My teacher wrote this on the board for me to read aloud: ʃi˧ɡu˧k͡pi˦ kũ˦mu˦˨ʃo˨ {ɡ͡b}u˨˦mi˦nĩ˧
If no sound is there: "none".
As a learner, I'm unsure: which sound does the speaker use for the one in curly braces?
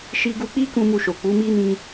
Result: k͡p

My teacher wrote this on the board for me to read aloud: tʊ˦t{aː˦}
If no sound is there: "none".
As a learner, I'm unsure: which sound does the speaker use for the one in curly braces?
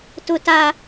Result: a˦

